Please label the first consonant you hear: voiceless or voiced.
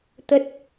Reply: voiceless